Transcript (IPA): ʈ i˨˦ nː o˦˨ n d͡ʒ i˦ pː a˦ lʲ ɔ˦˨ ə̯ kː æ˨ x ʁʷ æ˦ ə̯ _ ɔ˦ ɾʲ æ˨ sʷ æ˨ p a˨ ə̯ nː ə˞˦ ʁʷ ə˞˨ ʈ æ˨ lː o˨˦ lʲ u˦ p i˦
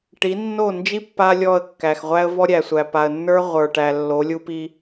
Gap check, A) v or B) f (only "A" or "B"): A